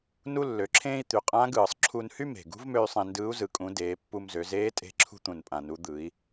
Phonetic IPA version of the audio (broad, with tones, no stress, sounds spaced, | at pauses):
n u˥ lː ø˩˧ ǁʰ ẽː˥ i̯ t̪ y˩˧ qʼ ã˧˥ ɡ ɯː˩ sˤ ǁʰ u˧ n h y˥ m e̤˩ ɡ ṳ˧˥ v m ø˧ y̯ sˤ ẽ˧ n d ɯː˧˥ u̯ z ɯ˩˧ kʼ ũ˩˧ d eː˩˧ pː u˧ m z ø˩˧ z eː˧˥ tʼ e̤˧ ǁʰ ṳ˧ t̪ ũ˩ n pʼ ã˩ n u˩˧ d̪ ɯ˩˧ i̯